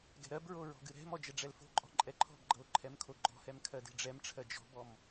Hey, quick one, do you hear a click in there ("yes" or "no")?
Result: yes